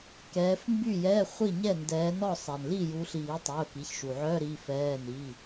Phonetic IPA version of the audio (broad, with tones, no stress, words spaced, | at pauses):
kɛː˨˦fmby˥˨jɛ˧˥˧ χʷi˥˨ɲɛ˥˨ndɛː˨˦nɔ˥˨ sˤɛ˩nli˥˨ju˨˦ɬiː˨˩˦ tˤy˩˧˩ʊ̯ki˩˧˩çʃu˩ ʕœ˧˥˧ɾi˩˧˩fɛː˩˧˩ ni˩˧˩